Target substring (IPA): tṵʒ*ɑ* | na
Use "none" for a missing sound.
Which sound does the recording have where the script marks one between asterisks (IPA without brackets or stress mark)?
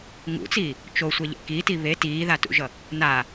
ʌ